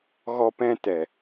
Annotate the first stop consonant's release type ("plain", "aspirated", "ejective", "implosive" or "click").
plain